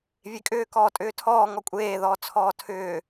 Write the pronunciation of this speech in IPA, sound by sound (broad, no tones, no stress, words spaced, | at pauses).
vʲekʼʏːkɔː tʼʏːtʰɔː ŋɔkʷʼeːðɔː t͡sʰɔːtʰʏː